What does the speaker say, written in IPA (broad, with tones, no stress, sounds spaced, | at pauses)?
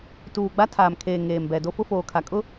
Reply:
t uː˨ ɡ͡b a˦ tʰ aː˨ m kʰ eː˨ ŋ eː˨ m b ɛ˨ d o˦ f ʊ˦ f oː˨ kʰ a˨ kʼ ʊ˦